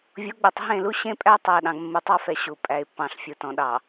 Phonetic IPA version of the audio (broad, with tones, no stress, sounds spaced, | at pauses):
vʲ o˨˦ ɡ͡b e˨ tˤ ɦ ẽ˦˨ l u˦ ɕ ẽ˦ pʼ æ˦ tˤ æ˨ ɗ ɑ̃˨ ɡ mː u˨ tˤ ɑ˦ f ɛ˨ ɕ u˨ pʼ æ˨ ɪ̯ pː ɑ̃˨ ɬ fʲ u˨ t ɔ̃˨ ɗ ɑ˨